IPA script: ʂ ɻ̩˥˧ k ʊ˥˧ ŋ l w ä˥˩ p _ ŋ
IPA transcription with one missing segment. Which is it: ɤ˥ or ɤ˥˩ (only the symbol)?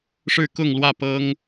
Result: ɤ˥